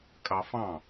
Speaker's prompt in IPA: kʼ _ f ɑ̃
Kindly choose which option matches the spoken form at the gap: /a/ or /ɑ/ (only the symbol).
ɑ